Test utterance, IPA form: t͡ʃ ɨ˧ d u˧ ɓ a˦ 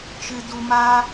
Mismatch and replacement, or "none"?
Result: ɓ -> m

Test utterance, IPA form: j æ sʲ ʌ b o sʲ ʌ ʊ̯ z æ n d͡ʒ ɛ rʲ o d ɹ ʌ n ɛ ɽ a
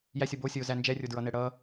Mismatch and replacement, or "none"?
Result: a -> ʌ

